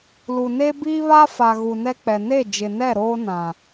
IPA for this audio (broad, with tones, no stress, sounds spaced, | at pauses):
l u˨ n e˦ b iː˦ β a˦ f a˨ ɣ u˨ n ɛ˦ k͡p ɛ˨ n e˦˨ d͡ʒ ɪ˨ n ɛ˦˨ ɾ oː˦ n ã˨